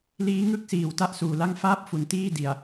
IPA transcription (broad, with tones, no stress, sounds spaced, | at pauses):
l iː˦˥ ŋ ɯ˥˩ k̚ s iː˨˩ w t a˥˩ ʔ s uː˨˩ l a˥˩ ŋ f aː˥˩ p̚ f u˩˦ n t iː˥˩ d i˨˩ a̯